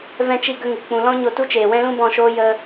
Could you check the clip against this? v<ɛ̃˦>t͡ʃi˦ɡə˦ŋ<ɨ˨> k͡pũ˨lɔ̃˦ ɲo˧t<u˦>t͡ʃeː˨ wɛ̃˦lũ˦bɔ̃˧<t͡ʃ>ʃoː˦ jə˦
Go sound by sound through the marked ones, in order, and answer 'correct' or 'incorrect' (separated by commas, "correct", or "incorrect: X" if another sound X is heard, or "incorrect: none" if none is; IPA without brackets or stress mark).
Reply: correct, correct, correct, incorrect: none